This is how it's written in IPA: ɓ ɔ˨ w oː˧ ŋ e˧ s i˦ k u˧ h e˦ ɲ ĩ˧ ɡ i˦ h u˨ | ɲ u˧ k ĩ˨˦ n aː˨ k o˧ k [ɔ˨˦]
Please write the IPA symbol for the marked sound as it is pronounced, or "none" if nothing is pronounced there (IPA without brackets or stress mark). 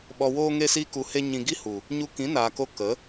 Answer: ə˨˦